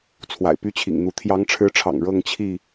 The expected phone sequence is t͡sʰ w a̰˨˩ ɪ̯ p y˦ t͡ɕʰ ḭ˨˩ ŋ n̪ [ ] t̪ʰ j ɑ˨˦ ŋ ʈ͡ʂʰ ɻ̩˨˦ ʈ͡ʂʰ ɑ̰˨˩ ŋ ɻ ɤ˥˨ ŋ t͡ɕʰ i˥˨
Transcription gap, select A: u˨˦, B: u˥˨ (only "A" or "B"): A